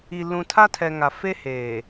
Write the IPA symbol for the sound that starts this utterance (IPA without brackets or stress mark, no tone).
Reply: i